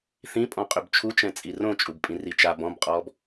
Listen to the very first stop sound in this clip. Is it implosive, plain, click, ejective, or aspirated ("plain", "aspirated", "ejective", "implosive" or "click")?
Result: ejective